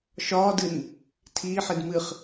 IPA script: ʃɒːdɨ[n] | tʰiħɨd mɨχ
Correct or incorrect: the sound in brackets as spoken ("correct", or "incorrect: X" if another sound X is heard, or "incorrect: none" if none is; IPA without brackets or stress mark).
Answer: correct